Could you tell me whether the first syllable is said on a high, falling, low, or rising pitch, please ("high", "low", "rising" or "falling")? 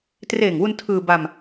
low